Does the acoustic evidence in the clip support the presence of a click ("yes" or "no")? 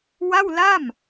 no